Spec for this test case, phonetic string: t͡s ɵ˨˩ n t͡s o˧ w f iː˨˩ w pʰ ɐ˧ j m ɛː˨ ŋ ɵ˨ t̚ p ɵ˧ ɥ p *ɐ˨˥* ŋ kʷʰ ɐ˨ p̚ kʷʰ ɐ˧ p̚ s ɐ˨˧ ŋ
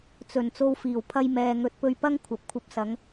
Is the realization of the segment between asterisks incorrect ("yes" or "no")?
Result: yes